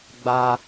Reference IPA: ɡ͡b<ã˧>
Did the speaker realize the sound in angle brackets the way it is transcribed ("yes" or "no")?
no